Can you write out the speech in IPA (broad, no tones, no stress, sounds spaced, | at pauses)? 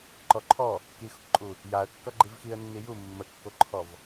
ǃ ɔ ǃʰ ɔ | k i x ʊ k ǃʼ u | j a ə̯ kː ʌ ɡ͡ǃ i v x i ə̯ nː i j u mː ə kː o ǃʰ ɔ v